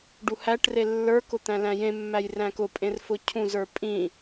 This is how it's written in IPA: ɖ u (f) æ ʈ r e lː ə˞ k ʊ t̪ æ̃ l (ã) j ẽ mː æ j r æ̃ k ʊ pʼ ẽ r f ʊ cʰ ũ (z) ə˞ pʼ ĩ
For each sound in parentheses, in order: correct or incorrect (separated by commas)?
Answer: incorrect, incorrect, correct